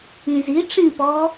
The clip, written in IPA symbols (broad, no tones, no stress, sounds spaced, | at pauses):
ĩ z i ʈ͡ʂ ĩ p ɔː